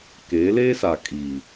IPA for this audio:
k e˨˦ l e˦ s a˨ kʼ i˨

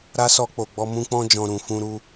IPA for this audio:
ɾ a˦ s ɔ˧ k͡p o˨ ɡ͡b ɔ˧ m ũ˧ k͡p ɔ̃˧ d͡ʒ ɔ̃˨ ɾ ũ˨ f ũ˧ ɾ u˧

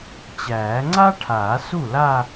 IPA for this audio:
t͡ɕ æː˨˩˦ ŋ͡ǀ a˥ ʈʰ aː˨˩˦ s u˥˩ l a˥˧

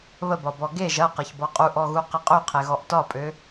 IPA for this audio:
β ə b ɒ b ɔ ɡ e ʒ ɐ q ə ç b ɔ qʼ u ʔ ɔ ɣ u q e qʼ ø qʰ e ɣ ɔ ʔ t ɒ pʼ ø

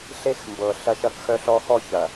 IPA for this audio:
ɬ e˦ x m b ɤ˨ ɬ ɐ˦ ʃ ɐ˦ k x œ˦ ɬ ɔ˦ x ɔ˦ ç ɐ˨

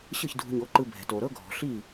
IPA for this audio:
ɕ ɯ˥˩ ç dʱ ṳ˧ ɲ o˩˥ ǃ ɯ˧ bʱ ɛ̤˩ t o˩ ɾ ɤ˥ ɡʱ ɔ̤˩ ɬ i˥˩

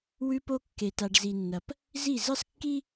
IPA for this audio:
w ʉ˦ p o˦ kː e˨ t a˨ ɖ z i˨ nː ɐ˨ p | z i˦˨ z ɨ˦ sˤ kː i˦

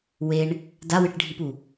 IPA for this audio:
w e ɳ | d a w ɨ ʈ ɖʱ i p u

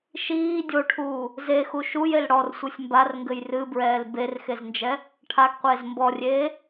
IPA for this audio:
ʃ iː dʲ o ʈʰ uː | z e x u ʃ u j e l ɽ ɔ r sʷ ɨ sʲ m b a r ŋ ɡ ɘ j r ɨ b ɹ ɛː l b e r x e z n d͡ʒ ɛ | ʈʰ a ɡ qʷ eː z m b ɔ rʲ eː

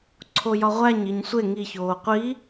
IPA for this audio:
ǀʰ o j ɒ ʁʷ æ ɲ i ɲ sʷ e ŋ i ç oː qʷ i

